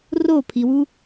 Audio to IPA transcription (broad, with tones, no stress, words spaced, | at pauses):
ro˦˨pʰi˨wu˦